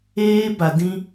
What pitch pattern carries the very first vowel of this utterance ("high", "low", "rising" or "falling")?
high